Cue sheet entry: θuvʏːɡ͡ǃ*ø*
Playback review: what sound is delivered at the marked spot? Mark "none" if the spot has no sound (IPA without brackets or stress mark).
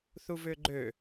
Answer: ø